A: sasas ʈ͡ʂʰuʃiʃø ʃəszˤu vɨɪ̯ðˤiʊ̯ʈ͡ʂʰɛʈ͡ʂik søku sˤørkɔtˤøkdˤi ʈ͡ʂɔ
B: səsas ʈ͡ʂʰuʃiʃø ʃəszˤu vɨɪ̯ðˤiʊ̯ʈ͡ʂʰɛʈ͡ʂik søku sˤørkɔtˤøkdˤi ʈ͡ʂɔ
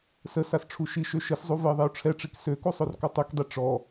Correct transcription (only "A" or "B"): B